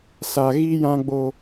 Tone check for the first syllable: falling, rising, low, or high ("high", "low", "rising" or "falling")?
low